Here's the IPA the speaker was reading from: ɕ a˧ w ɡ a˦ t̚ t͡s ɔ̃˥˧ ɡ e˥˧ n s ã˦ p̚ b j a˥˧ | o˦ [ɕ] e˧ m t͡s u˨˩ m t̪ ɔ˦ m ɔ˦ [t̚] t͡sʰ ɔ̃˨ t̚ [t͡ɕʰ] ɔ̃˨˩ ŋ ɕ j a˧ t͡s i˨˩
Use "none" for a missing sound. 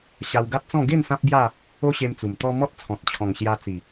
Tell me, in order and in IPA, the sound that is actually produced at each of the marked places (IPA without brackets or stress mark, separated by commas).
ɕ, t̚, t͡ɕʰ